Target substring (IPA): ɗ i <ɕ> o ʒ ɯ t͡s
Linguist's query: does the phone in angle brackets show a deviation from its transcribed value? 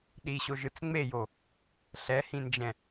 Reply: no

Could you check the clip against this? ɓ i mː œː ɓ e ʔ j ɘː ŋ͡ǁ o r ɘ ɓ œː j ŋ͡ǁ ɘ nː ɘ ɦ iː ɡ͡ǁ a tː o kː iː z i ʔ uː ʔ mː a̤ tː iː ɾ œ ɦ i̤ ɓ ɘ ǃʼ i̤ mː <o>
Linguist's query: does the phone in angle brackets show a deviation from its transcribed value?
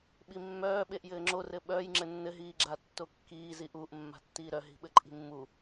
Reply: yes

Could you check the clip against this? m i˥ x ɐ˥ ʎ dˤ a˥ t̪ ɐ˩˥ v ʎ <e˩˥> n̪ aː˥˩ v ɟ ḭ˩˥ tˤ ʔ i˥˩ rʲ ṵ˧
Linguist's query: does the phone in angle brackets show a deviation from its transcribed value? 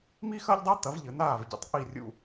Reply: yes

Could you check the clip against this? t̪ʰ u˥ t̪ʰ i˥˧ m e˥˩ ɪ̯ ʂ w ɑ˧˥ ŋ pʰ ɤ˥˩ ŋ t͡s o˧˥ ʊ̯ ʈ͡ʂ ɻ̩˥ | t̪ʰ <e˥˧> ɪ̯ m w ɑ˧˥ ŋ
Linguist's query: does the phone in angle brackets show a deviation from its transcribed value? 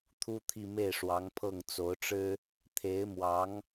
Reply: yes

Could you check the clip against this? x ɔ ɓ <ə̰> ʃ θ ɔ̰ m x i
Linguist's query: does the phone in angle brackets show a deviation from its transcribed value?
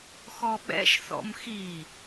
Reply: yes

